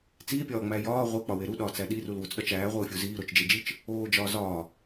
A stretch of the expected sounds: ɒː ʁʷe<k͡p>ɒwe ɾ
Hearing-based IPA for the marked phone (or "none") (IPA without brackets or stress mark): k͡p